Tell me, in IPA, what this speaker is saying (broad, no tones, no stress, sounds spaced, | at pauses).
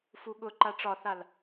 f u ɠ ʊ ǃ a ʈ͡ʂ ɒ θ a l